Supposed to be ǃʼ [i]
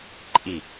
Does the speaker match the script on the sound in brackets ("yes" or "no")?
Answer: yes